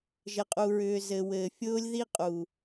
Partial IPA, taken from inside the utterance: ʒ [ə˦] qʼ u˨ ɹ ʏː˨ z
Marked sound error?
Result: yes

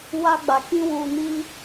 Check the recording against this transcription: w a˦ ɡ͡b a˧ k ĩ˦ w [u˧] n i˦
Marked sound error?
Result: no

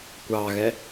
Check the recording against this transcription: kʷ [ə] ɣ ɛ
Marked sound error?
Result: yes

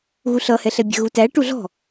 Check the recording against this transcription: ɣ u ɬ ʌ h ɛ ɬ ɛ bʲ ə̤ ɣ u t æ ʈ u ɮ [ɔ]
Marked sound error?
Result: yes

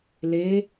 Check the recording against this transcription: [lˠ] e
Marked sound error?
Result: yes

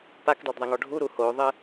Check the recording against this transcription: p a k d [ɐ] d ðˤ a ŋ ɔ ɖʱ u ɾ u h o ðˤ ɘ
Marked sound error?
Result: yes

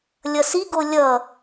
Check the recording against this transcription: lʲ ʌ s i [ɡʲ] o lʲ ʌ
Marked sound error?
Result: yes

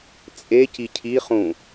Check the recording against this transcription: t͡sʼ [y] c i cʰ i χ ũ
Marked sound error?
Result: yes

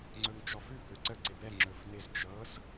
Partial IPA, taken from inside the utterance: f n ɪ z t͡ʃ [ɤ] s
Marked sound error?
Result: no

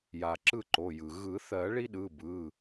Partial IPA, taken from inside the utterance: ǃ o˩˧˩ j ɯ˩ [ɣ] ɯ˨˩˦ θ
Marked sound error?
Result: no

